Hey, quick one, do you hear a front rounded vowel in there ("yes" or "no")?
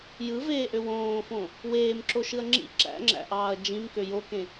yes